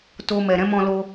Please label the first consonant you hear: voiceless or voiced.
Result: voiceless